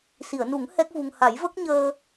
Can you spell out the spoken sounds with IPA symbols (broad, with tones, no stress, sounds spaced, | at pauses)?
s i˨˩˨ ə̯ n u˨˩˦ ŋ h ɛ˦˥ k̚ v u˧ ŋ h a˨˩˦ j v ə˦˥ k̚ ɲ əː˧